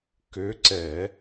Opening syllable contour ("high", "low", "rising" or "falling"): rising